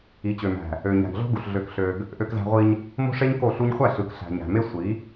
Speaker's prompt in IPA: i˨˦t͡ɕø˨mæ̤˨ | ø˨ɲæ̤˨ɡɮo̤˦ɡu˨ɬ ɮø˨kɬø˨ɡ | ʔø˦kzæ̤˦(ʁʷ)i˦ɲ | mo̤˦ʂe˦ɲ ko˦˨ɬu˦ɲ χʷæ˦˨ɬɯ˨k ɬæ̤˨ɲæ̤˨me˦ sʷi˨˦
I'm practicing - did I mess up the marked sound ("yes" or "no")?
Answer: no